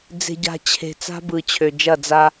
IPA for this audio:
d͡ze̤˨ɟa̤˨ t͡ɕʰe̤˨ t͡sa̤˦bɯ˨t͡ɕʰø˨ d͡ʒɐ˦˨d͡za˦

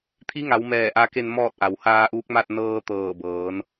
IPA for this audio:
t̪ʰi˧˥ŋa˩˧w mɛː˧˩ʔa˧ke˧n mɔː˥˨t̚ʔa˩w haː˧ʔuː˧˥k̚ma˥˨t̚ nɤː˧ t̪ɤː˧˩bɤː˩˧n

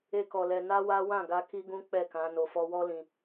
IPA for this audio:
e˦kɔ˧lɛ˧ na˦wa˦ wã˦˨ɡa˧ ki˦ɡũ˦ k͡pɛ˦˨kã˨˦ no˧fɔ˦ wɔ˦lĩ˧

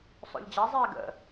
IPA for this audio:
sˤo̰ʎd͡ʑa zˤɛːɡə̰

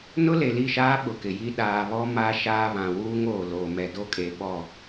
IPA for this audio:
nʊ˦le˨li˦˨ʃaː˦ ɓʊ˨kɪ˨ji˦ ɗaː˨βɔ˦ ma˦ ʃaː˦βã˨ wuː˦ŋoː˨ lo˨ mɛ˨do˦kʼe˨ ɓɔ˦˨

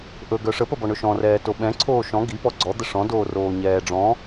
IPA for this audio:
ʔɵ ɡœʂə pəbɔɳɵʃɔ̃ rɛːtoɓɛ̃ ǀʰoːʃɔ̃ ɡi pɔɡ͡ǀɔ d̪əʂɔ̃ doːroːɲɛːɖ͡ʐɔ̃

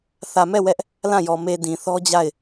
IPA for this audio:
θä˨mɛ˦˨ wɛ˦ʔ | lã˦˨jɔ˨ me˨ dĩ˨θɔ˦d͡ʑa˦˨ɪ̯

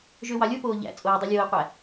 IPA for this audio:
ʒøwɑlʲopoː ʎæ̰ t͡sʼoːdˤelʲoːi̯qʷæ

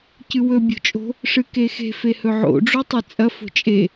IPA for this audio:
cɨwɵ bʲo̤t͡ʃʼo̤ | ʂɨkexe̤ fehɵʕo̰ ɖ͡ʐotˤɨt͡sʼɐ fo̤t͡ʃʼe

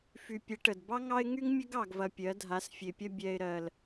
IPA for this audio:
fy˨pʲə˨˦ʈə˨d bɑ˦ŋɑ˦ɪ̯ŋy˦ŋmʲə˦ɡ ɑ˨ɡvɐ˨ pʲɜ˨˦dʱa˨˦sfʲe˨pʲɐ˦ bʲɛ˨ɪ̯ɾɜ˨l

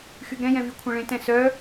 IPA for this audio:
xyɡɾɛ̃jɛ̃ vykʷʰɛ̃ɭẽtɛ̃ sœ

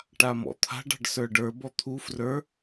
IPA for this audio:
ʈamɔ̰t̪ʰa̤ɖ ɑ̤ɖsə˞ɖə˞ bɔt̪ʰu frə˞

